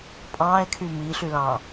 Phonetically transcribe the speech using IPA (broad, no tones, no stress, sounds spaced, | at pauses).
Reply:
pʼ ɑ̃ e̯ kʰ y m i ɬ y l ɑ̃